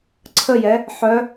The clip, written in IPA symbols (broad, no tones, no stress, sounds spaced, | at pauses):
ǀʰ ə j ɛ | ħ œ